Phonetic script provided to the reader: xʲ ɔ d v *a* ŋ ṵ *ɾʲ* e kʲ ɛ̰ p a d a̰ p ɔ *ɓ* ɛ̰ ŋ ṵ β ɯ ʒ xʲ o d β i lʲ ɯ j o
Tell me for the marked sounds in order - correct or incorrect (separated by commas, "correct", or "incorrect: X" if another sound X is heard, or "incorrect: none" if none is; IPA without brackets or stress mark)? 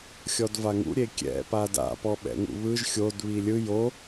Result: correct, correct, correct